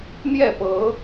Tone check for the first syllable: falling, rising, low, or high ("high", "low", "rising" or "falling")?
falling